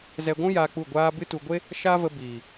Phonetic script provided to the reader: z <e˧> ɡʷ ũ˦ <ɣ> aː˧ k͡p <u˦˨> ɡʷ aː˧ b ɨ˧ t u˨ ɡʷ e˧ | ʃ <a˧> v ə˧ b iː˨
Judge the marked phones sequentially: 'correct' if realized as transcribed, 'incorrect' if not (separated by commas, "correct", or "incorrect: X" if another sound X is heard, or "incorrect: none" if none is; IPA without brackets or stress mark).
incorrect: ɛ˧, incorrect: j, correct, incorrect: a˦